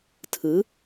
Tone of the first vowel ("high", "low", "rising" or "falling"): rising